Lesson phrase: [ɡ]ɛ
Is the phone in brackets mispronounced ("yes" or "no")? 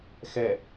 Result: yes